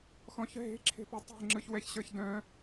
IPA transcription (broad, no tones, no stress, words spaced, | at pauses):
xɔ̃çɦe̤ ǁʰe̤pœtˤe̤ ŋ͡ǁɯçwɛçɕə˞çdœ̃